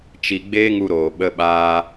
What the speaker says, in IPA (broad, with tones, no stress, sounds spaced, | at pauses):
t͡ʃ i˨ ɡ͡b eː˦ ŋ u˧ ɾ oː˨ ɓ ə˧ ɓ aː˧